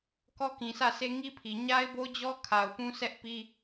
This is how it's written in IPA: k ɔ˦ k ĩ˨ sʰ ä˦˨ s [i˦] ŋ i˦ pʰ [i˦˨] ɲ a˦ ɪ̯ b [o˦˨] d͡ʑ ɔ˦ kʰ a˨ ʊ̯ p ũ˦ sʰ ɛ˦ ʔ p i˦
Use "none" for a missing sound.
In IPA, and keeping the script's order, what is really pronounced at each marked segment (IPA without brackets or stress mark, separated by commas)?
e˦, i˨, o˦